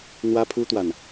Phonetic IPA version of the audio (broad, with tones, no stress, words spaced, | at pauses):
n̪wä˦pʰu˦t̪wa˨n